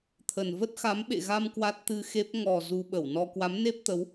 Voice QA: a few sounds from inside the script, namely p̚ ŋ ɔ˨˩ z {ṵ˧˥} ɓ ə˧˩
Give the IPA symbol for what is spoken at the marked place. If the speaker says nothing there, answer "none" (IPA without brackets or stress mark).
u˧